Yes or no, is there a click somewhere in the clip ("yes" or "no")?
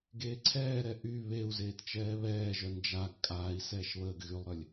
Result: yes